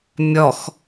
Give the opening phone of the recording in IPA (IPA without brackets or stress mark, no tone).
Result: mʲ